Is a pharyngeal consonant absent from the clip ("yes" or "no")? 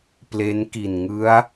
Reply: yes